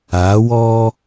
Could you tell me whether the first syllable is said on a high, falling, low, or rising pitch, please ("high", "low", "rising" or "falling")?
rising